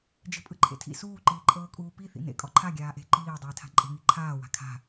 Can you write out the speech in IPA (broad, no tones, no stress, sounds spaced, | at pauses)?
d͡ʒ e̤ pʼ ɯ ǃʰ ḛ tʰ ḭ s uː ǃ iː ǃʼ ɤː kʼ uː p i θ ḭ n ḛ kʼ ɔ ǃʰ a ɡʲ aː ʔ e̤ ǃ iː dˤ iː tʰ a̤ ǃʼ e̤ ŋ i ǃʰ aː w a̤ kʰ a̤